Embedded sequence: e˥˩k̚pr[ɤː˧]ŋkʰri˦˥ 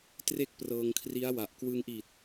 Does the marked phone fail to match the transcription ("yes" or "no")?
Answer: no